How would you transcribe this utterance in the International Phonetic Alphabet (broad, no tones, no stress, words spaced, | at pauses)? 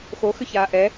xoxʏçaː ʔɛ